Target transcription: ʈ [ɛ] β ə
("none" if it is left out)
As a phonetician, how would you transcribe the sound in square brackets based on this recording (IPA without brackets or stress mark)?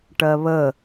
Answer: ɜ